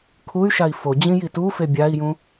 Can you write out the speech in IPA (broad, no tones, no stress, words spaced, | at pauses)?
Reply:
kʰuy̯ʃai̯ fod͡ʑĩ jitufe bʲai̯jũ